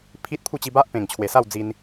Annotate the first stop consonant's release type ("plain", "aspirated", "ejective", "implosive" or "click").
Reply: aspirated